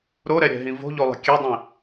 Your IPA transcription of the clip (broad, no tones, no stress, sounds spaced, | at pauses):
ɾ o ɾ ɛ ɾʲ ɛ̤ ɦ ĩ v o̤ ʎ o lˠ ə̤ kʲ ɛ dˤ ĩ